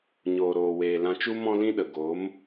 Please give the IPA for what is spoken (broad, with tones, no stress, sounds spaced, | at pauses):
ɲ oː˨ ɾ oː˨ w eː˨ l ã˧ t͡ʃ u˦ m ɔ̃˦ l ĩ˦ ɗ ə˨ ɡ o˨˦ m